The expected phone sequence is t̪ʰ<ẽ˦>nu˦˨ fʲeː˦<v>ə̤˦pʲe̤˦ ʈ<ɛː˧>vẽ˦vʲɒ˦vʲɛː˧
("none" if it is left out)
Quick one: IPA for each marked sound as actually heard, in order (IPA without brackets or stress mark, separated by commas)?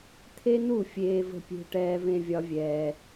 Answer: e˦, v, ɛː˦